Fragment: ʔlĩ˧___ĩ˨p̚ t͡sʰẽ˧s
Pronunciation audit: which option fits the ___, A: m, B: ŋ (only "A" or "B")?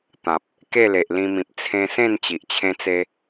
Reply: A